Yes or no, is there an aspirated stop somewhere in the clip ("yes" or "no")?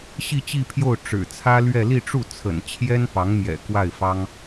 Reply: yes